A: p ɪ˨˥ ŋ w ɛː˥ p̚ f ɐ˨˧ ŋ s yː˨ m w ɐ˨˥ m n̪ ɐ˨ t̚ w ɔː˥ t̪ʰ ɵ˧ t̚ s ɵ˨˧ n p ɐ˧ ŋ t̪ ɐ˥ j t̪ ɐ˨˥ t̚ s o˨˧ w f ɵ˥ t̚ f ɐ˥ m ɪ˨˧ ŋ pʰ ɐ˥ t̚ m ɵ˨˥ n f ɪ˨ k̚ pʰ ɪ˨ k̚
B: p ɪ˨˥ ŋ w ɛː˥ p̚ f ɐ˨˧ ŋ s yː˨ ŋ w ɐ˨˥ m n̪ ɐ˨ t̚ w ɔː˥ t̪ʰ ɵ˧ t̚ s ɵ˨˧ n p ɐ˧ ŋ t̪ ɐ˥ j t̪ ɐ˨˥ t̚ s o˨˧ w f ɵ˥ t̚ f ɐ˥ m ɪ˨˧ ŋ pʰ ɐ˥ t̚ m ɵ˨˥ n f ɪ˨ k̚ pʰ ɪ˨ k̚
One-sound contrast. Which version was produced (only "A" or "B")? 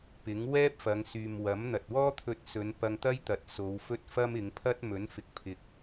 A